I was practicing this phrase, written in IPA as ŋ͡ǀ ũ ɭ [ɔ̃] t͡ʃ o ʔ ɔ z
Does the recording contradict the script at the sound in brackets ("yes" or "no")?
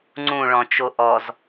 no